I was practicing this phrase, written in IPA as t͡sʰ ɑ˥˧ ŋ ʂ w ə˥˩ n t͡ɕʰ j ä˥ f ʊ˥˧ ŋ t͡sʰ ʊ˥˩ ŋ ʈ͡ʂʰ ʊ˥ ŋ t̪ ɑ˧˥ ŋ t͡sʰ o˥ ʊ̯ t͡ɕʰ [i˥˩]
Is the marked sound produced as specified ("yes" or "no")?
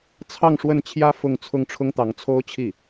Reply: yes